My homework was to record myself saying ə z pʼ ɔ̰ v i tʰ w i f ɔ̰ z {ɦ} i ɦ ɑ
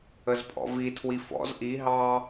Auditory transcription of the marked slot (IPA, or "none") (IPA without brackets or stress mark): ʔ